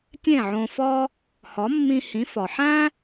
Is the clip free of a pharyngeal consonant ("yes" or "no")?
no